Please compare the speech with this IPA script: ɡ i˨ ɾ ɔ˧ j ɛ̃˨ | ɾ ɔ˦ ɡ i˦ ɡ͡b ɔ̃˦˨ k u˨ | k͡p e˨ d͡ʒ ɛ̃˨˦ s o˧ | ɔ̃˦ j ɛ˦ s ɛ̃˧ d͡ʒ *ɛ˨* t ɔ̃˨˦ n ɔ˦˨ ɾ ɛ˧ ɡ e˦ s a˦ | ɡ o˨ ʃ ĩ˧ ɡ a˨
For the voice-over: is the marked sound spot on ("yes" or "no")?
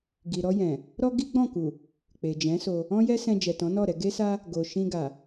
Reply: yes